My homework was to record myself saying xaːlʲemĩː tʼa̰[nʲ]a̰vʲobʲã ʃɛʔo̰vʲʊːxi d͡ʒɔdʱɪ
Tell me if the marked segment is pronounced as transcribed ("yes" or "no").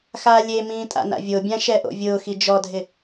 no